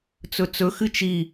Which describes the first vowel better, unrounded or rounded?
rounded